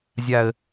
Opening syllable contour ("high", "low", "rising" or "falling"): low